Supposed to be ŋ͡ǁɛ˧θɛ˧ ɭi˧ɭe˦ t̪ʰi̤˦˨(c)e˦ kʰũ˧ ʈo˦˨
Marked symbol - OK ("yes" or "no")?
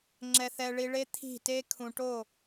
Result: no